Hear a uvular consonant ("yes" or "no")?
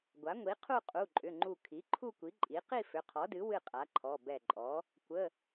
yes